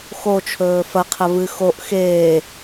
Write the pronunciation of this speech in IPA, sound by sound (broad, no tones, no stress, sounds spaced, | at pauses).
x o t͡ʃʰ ɵː f ɐ qʰ ɐ v ɨ x o ʔ x eː